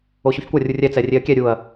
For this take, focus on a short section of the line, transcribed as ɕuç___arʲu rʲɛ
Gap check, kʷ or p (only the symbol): kʷ